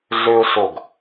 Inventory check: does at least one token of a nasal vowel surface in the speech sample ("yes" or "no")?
no